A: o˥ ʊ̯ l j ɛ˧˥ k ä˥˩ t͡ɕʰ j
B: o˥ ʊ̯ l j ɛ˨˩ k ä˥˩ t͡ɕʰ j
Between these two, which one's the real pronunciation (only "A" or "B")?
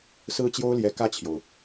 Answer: A